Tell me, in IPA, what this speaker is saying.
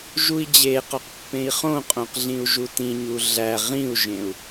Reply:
ʒ u i̯ d͡ʑ e q ɒ q pː ẽ i̯ χ õ qʼ õ q ɮ ĩ u̯ ʒ u t ĩ ɲ u ɮ æ ʁ ĩ u̯ ʒ ẽ u̯

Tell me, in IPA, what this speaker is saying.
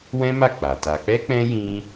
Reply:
w ɛ̃˦ m a˦˨ k͡p a˨ t a˧ k͡p ɛ˦ k͡p ɛ̃˦ j ĩ˦

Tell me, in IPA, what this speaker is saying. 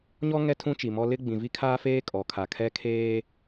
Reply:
ɲ ɔ˦ ŋ ɛ˦ tʰ ũ˦ t͡ʃ i˨ m ɔ˦ l ɪ˦ ɡ͡b ĩ˨ v i˦ kʰ aː˦ f eː˦ kʼ ɔ˨ kʰ a˨ kʰ ɛ˦ kʰ eː˦

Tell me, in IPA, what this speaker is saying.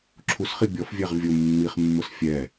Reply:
ǁʰ u s χ i bʲ ɔ f vʲ ɛ ʁ vʲ ʊ mː i χ mː ʊ s fʲ ɛ

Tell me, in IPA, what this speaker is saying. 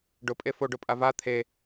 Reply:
ɖ ʊ pʼ e f o ɖ ʊ pʼ a v a t̪ʰ e

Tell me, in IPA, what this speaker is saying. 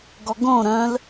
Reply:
ɡ ɔ ɡ õ ɾ œ̃ l

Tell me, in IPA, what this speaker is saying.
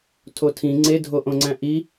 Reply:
tʰ o tʰ ĩ ŋ͡ǀ e dʱ o ʔ õ ŋ͡ǀ æ̃ ʔ i

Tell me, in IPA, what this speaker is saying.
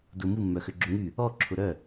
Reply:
d ʊ m u mː œ x ø ɡ͡ǁ ʊ ŋ y | ɔ ǁʰ ʊ ɾ œ

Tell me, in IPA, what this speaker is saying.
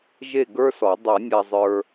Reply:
ʒ e˥˨ ɡ ə˞˥ s ɔ˨˩˦ dˤ a˨˩˦ nʲ a˨ zˤ ə˞˨

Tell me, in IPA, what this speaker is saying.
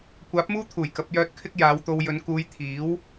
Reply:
kʷ aː˨˥ p̚ m uː˥ t̪ʰ uː˨˩ j k ɐ˨˥ p̚ j œː˧ t̚ kʰ ɪ˥ k̚ j aː˨˧ w t̪ o˧ w j ɵ˨˧ n k uː˧ j t̪ʰ iː˨˥ w

